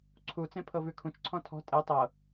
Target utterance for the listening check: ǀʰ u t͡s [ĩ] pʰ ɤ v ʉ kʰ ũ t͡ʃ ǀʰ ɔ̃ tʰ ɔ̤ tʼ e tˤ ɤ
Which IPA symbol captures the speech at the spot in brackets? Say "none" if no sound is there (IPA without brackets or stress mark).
ẽ